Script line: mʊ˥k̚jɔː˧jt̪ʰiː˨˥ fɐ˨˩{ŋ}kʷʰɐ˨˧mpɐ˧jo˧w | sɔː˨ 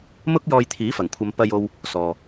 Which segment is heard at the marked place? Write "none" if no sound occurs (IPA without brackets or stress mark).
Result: ŋ